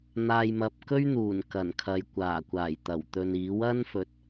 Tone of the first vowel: low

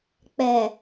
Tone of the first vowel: low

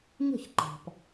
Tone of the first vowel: falling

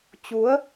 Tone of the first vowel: rising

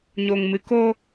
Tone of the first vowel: low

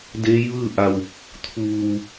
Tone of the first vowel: rising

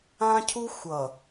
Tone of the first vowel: high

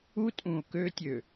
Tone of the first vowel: high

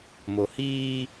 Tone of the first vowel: low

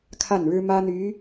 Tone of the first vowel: falling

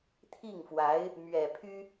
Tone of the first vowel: falling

